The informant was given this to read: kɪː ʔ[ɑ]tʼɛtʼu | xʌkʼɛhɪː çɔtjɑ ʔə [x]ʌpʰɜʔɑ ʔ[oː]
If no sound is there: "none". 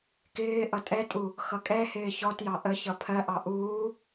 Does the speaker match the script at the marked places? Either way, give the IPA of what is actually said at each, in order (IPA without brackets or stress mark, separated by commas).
ʌ, ç, uː